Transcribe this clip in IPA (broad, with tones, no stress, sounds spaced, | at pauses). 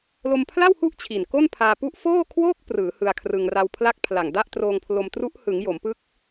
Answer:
l o˧ m pʰ l a˥˩ w h u˥˩ ʔ t͡ɕʰ i˨˩ n k o˥˩ n pʰ aː˧ p u˥˩ ʔ f oː˥˩ kʰ w oː˥˩ k̚ p r ɯː˩˦ h ɯ˧ a̯ kʰ r ɯ˧ ŋ r a˧ w pʰ l a˥˩ k̚ pʰ l a˨˩ ŋ d a˥˩ ʔ t r oː˧ ŋ pʰ l o˧ m t r u˦˥ ʔ h ɯ˩˦ ŋ j o˩˦ m p ɯ˦˥ k̚